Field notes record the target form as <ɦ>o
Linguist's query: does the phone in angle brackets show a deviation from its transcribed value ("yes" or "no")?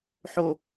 yes